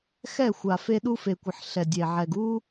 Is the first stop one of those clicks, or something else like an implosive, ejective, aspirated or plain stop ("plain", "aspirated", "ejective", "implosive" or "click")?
implosive